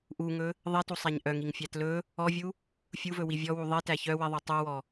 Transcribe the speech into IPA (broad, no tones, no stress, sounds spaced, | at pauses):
ʔ u ŋ ɵ | ðˤ i t u sˤ æ ɲ ʔ œ ŋ i ŋ fʲ æ t l ɵ | ɔ vʲ u | fʲ u v ɵ w i vʲ ɔ w u ðˤ i t æ ç œ w i ðˤ u tˤ u w ɔ